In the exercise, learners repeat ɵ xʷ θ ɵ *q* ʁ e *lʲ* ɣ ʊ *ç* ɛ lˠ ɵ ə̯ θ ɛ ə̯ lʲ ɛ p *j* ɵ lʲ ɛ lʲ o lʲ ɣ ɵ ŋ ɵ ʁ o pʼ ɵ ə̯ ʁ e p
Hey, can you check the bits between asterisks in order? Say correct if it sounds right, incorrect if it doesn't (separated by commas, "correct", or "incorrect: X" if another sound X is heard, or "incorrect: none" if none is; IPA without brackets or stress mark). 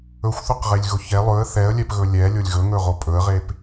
correct, correct, correct, incorrect: ɣ